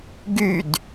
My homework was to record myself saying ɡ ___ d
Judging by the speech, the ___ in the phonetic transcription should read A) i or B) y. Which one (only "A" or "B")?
B